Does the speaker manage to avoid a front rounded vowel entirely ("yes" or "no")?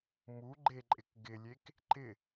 yes